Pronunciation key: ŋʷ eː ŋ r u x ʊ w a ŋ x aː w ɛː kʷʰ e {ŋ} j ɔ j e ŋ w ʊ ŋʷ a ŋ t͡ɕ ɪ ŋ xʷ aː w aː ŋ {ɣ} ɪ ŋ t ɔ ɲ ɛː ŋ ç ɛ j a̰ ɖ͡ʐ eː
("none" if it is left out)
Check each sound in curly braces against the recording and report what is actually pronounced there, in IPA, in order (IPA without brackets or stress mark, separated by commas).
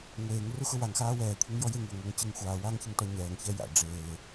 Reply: ŋ, ç